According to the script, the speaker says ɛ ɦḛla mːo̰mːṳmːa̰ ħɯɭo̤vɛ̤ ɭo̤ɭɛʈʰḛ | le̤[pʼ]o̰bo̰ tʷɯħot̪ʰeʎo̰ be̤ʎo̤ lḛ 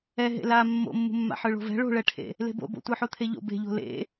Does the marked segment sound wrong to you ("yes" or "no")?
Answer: yes